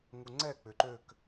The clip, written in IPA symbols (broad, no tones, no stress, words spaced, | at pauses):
ŋuŋ͡ǀɛ k͡pʏǃøk